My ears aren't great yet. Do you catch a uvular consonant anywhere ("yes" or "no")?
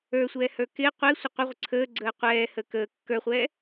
yes